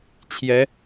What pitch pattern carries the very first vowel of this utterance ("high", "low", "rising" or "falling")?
rising